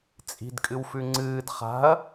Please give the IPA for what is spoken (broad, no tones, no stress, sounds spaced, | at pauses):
t͡sʼ i̤ d kʼ ɨ w f ʉ ŋ͡ǀ ɨː d χ a̤ ɐ̯